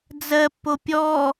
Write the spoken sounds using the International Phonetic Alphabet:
d͡z ɜ pː o pʲ ɔ

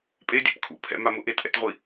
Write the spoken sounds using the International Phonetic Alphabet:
pʼ e dʲ ɛ̰ p kʰ ṵ pʰ ɛ̰ m a m ʊ ʔ e t ʔ ɛ̰ t ʁʷ i

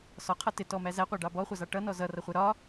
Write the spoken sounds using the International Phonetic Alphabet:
s ɒ qʰ ʌ t ɪ t ɔ m æ z æ qʷ ɑ ɖ ɑ b ɔ χʷ ʌ z ɑ ʈ ʌ n ɔ z ʌ r ʌ χʷ ə ɾ ɒ

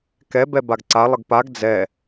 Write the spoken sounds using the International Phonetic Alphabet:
k ɛ b ɛ b a ɡ ǀ a lˠ ə ɡ p a ɡ d͡z ɛ

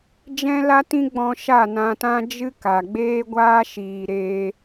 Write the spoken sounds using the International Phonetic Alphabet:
d͡ʒ ɛ̃˦ l a˦ t ĩ˦ ɡ͡b ɔ̃˧ ʃ a˦˨ n ã˧ t ã˦ d͡ʒ ɨ˦ k a˨ ɡ͡b eː˦ ɡʷ aː˦ ʃ iː˨ ɾ eː˧

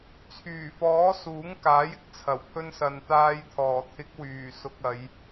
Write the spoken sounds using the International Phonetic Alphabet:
t͡sʰ yː˨˩ f ɔː˨˥ s uː˨˥ ŋ k aː˨˥ j ɪ˧ k̚ t͡sʰ ɐ˨˩ w pʰ ɵ˧ n s ɐ˨ n t̪ aː˧ j t̪ʰ ɔː˨˩ t̪ʰ ɪ˨˥ k̚ w yː˨˩ s ʊ˨ k̚ ɐ˨˧ j

